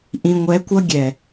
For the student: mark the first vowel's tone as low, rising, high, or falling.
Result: low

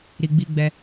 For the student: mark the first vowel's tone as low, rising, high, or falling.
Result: low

